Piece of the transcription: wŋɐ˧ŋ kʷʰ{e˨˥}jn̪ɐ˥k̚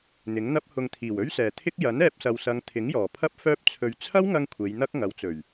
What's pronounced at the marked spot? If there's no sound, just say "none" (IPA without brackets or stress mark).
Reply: e˨˧